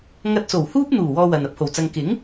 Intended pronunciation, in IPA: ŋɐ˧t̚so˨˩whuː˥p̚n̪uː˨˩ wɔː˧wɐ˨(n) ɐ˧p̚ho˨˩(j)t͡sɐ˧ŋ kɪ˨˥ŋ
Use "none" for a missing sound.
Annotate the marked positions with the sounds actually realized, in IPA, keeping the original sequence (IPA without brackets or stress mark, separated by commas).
n, w